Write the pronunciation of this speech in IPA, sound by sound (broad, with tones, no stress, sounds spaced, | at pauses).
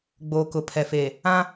ɡ͡b oː˨ k ʊ˨ pʰ ɛ˨ f eː˨ | ã˦